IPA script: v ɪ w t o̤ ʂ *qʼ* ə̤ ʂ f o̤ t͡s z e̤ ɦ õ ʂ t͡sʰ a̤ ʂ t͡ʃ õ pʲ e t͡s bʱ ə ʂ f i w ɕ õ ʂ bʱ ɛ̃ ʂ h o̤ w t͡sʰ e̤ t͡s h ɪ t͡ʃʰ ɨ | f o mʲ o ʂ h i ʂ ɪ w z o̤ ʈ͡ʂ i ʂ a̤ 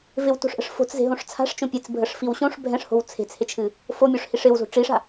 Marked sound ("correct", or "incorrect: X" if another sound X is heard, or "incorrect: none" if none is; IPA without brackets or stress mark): incorrect: ʔ